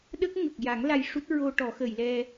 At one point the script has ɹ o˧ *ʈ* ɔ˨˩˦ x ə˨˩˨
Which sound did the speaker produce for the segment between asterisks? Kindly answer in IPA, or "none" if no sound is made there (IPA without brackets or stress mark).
ʈ